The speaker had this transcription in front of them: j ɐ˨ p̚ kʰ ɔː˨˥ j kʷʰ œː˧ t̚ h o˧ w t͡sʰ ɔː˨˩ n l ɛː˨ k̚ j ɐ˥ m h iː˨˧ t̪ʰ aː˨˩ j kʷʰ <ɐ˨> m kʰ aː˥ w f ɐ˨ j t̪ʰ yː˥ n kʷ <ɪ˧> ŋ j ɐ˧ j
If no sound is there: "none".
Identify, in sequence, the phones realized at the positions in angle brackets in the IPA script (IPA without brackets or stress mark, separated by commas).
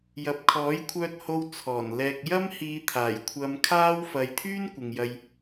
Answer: ɐ˧, ɪ˨